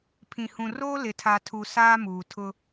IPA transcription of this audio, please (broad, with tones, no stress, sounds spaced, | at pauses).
pʰ ĩ˨ h ũ˨ r oː˦ l ɪ˨ tʰ a˨ tʰ u˨ s aː˦ m uː˨ tʰ ʊ˦